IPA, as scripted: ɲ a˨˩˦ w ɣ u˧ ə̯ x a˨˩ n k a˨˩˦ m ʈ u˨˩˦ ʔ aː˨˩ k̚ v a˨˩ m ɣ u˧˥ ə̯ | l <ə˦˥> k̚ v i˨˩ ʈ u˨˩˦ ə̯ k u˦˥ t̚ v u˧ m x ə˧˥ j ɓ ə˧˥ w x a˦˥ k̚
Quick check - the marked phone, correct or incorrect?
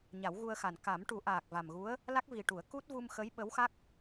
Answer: incorrect